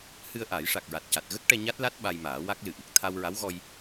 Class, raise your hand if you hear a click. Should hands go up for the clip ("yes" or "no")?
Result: no